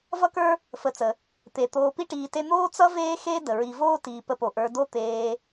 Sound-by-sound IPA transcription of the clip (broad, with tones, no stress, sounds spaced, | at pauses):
v ʌ˦ k ə˞˦ | f ə˨ t͡s ə˩ | t̪ e˩ t̪ oː˨ p i˦ ʈ iː˨ t e˦ n̪ oː˥ t͡s ʌ˥ v eː˥ x e˥ d ə˩ ɹ i˨ v oː˥ t iː˨ p ə˨ p o˩ ʔ ə˞˨ d o˦ t̪ eː˨